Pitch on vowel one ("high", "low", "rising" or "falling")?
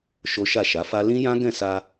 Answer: high